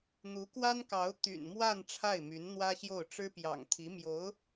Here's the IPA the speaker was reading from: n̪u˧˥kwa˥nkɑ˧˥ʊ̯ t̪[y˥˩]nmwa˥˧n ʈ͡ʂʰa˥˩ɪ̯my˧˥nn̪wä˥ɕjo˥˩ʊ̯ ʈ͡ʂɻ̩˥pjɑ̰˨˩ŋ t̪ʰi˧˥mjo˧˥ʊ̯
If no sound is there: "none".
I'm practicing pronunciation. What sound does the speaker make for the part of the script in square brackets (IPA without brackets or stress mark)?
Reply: y̰˨˩